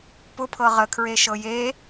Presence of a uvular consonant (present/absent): present